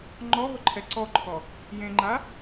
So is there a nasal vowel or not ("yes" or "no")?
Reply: yes